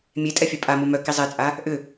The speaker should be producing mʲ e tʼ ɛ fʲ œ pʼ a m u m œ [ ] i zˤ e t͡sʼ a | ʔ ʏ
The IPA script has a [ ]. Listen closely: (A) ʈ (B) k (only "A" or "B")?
B